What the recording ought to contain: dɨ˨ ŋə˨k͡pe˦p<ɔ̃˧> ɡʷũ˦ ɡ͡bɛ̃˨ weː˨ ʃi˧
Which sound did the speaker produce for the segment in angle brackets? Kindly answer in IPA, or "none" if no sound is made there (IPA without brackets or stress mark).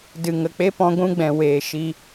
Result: ɔ̃˧